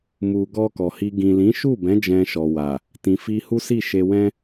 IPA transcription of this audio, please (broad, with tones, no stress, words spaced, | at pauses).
mu˨ɡɔ˧ kɔ˨hi˧ ɡĩ˨lĩ˨˦ʃu˦˨bɛ̃˨˦ d͡ʒɛ̃˧ʃɔ˨wa˨ | tĩ˨fi˧hu˦si˦˨ ʃe˧wɛ̃˦